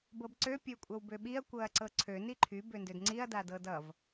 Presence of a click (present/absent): present